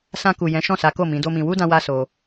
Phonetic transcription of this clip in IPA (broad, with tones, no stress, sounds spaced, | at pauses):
s ã˧ k u˨ j ɛ̃˨˦ ʃ ɔ̃˦˨ s a˨˦ k o˦˨ m ĩ˨˦ d o˦ m ĩ˧ w u˦ d ã˧ w a˦ s o˧